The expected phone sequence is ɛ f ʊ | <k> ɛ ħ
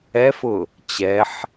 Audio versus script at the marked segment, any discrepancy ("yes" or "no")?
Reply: yes